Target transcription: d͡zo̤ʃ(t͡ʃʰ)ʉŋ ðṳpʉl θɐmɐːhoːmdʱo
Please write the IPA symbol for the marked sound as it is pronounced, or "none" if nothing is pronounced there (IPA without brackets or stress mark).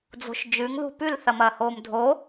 d͡ʒ